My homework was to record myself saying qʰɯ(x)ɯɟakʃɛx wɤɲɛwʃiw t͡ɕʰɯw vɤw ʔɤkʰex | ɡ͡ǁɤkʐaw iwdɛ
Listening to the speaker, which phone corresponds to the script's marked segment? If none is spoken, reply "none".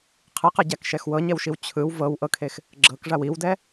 q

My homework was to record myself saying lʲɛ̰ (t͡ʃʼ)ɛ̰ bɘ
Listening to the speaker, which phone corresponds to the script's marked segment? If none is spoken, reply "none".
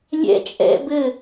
t͡ʃʼ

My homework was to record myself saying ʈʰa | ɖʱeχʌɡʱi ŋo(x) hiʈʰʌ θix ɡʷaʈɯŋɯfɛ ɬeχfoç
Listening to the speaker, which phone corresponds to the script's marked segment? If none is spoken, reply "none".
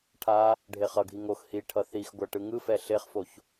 x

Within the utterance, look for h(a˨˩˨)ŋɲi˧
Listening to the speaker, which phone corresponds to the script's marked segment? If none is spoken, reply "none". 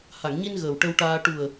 a˨˩˨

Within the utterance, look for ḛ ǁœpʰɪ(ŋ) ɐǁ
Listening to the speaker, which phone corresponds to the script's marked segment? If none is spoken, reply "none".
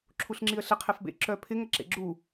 ŋ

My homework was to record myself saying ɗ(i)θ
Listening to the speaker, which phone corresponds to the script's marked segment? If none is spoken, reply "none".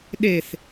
e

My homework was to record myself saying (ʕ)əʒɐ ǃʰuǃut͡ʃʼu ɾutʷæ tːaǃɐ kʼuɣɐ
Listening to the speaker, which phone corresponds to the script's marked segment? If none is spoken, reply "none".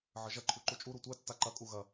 ʕ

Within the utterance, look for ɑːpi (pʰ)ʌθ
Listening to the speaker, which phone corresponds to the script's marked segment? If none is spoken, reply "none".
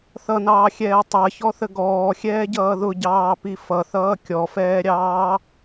f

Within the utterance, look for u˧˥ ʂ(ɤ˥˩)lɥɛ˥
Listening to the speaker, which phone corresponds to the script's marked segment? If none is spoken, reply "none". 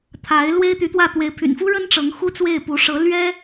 ɤ˧˥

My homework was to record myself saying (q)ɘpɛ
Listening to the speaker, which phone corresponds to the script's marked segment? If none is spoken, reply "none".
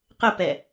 q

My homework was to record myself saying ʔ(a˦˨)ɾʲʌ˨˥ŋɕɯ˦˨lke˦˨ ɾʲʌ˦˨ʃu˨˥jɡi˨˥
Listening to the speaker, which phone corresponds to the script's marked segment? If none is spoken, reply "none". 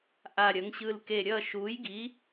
a˦˨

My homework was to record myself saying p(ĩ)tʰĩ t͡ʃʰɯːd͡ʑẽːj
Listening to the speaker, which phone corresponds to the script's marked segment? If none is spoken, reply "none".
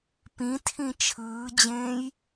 ĩ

